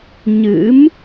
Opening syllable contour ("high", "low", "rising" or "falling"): rising